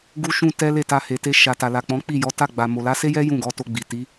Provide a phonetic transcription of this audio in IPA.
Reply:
ɡu˦ʃũ˦tɛ˦ le˦˨ta˧ he˨te˧ ʃa˨ta˨la˨ k͡pɔ̃˨˦k͡pi˦˨jɔ˨˦ ta˦˨ɡ͡ba˨mo˨ la˨˦se˦jɛ˦ jũ˦˨ɡɔ˨˦to˧ɡ͡bi˨ ti˨˦

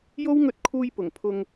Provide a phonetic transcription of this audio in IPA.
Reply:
jo˥wŋɵ˧t̚ kʰuː˧jpʊ˨˩ŋpʰʊ˧ŋ

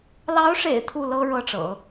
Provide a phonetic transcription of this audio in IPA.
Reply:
lɑ˧˥ʊ̯ʂḛ˨˩ɪ̯ t̪ʰu˥˩lɤ˥ ɻɤ˥˩ʈ͡ʂɤ̰˨˩˦

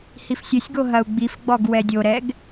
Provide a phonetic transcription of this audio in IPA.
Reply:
hifsʲɘsʲɡo ɦɐu̯ɡ͡bifɡ͡bɔɡ wɛdʲoɾɛɡ

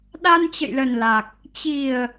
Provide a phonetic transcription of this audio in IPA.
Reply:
ɗa˧nt͡ɕə̰˧˨jlə˨˩nla˨˩k̚ | t͡ɕi˨˩ə̯

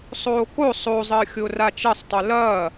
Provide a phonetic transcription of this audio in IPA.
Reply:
sˤoːko sˤozˤəːxʲo rat͡ʃɐsˤtˤo lɐː

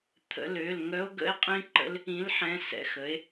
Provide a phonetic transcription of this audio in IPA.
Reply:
t̪ʰə̰˩˧˩lø˩˧˩l ŋœ˧˥o̯ɡə̰˧˥e̯qʼĩ˧˥ǃə̰˧˥l | ĩ˩˥lħɛ̃˩˧˩ sɛ̰˩˧˩xə˩˥e̯

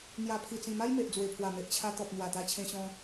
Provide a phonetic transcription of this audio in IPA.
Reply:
n̪ja˨˩pʰi˨˩t͡sĩ˨˩ ma˦jme˨ʔd͡zwe˨˩pʰwa˨˩ me˨ʔt͡ɕʰa˧ t̪ɔ˨p̚ n̪wa˨˩t̪a˧t͡ɕʰẽ˧ ɕɔ̃˧

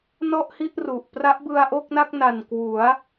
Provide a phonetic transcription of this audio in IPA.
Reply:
nɔ˥˩ʔhi˥˩ʔ ru˨˩ʔ pra˦˥ʔbɯ˧a̯ʔo˥˩k̚na˥˩k̚ na˨˩nkwu˩˦a̯

